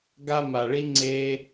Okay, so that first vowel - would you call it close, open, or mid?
open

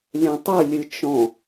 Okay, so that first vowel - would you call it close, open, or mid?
mid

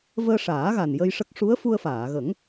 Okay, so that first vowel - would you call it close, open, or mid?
mid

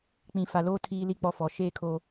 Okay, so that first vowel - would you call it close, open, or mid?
close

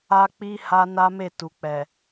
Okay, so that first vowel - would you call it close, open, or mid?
open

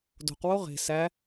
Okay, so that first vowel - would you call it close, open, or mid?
mid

